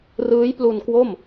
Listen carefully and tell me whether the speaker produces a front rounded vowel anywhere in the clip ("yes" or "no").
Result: no